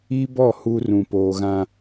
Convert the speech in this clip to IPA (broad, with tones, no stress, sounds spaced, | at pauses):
i˦ b ɔ˦˨ h u˦ r ũ˨ p oː˨ ɣ ã˦